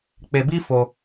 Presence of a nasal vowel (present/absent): absent